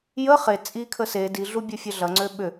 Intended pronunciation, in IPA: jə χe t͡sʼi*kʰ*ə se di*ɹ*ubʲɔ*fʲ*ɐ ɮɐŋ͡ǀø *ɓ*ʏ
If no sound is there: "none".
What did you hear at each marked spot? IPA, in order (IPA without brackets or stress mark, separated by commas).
kʰ, ɮ, fʲ, ɓ